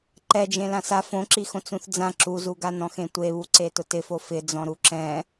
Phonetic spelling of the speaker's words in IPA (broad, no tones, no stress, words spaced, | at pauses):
ǃɛd͡ʒẽ lãsa fõǁi xõt͡sũθd͡zã ǁuzuɡanɔ̃x ẽtʷeβuǀe tʊtɪfo fɪ d͡zɔ̃ɾuǁɛ̃